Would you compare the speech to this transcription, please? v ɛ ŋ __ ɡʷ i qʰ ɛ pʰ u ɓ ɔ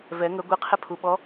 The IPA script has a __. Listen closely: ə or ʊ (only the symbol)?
ə